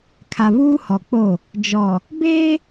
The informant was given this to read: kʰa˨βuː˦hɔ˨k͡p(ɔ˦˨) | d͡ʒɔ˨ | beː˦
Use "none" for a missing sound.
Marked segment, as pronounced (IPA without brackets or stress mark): o˦˨